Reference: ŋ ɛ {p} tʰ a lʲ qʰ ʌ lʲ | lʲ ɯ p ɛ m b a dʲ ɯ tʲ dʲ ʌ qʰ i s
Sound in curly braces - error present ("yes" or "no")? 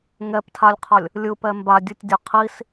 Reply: no